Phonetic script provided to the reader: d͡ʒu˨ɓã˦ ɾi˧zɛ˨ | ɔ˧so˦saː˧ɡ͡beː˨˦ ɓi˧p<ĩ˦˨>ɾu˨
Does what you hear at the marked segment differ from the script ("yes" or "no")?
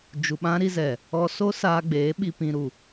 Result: yes